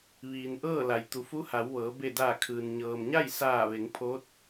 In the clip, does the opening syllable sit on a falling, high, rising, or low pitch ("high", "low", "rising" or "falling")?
low